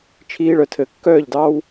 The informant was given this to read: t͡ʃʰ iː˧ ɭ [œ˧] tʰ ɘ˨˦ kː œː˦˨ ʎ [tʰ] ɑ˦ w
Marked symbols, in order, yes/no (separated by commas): no, no